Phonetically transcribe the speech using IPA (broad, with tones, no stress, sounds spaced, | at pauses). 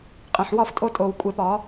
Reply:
qʼ ẽ˨ ħ w ɒ˦˨ f tʼ o˧ tʼ o˨ w kʷʼ e˧ p ɒ˨˦